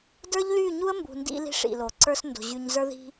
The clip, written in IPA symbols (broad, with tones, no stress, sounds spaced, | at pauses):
d ə˞˦ ʎ l y˦˨ ɲ u˦ ə̯ m b ṳ˨ n d ḭ˦ l i̤˦ ʂ ḭ˨ l o˨ ǀ ə˞˦ s n d o̤˨ ʑ y˨ ɲ z ə˞˦ ð i̤˦